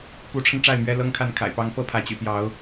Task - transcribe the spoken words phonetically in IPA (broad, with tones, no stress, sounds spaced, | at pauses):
k u˨˦ ʈ͡ʂʰ ə˧ n ʈ͡ʂ a˥˨ ɪ̯ m ɥ ɛ˦ l ɤ˦ ŋ kʰ a˥˨ n kʰ a̰˨˩ ɪ̯ p ɑ˦ ŋ p ɤ˥˨ pʰ ä˨˦ t͡ɕ y̰˨˩ p j ɑ˨˦ ʊ̯